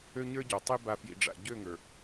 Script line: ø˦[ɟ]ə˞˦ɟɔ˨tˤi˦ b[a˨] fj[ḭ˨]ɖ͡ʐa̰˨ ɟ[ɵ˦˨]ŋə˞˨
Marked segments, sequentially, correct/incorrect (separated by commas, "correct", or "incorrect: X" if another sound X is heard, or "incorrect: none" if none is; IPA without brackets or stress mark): incorrect: ɲ, correct, correct, incorrect: ø˦˨